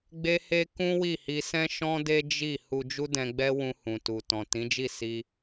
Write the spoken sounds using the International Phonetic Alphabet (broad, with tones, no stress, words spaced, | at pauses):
ɡ͡be˦he˦ kũ˦wi˦˨hi˧ sɛ̃˦ ʃɔ̃˦de˦d͡ʒi˦˨ hu˧d͡ʒu˦dɛ̃˧ɡ͡bɛ˦ wũ˧hũ˨tu˨ tɔ̃˨tĩ˨˦d͡ʒi˦˨ si˧